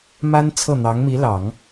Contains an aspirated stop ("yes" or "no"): yes